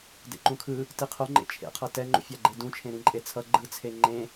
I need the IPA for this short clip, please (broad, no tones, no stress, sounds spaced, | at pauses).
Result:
d ḛ ǃ ũ kʰ ɯ | t i qʰ o ŋ͡ǃ ḛ t͡ʃʰ ḛ qʰ ʌ t ɛ ŋ͡ǃ ṵ fʲ a ɡ͡ǃ e d ũ t͡ʃʰ ẽ ɾ ĩ ǃʼ e t͡sʰ ʌ ɡ͡ǃ ɯ t͡sʰ e ŋ͡ǃ ẽ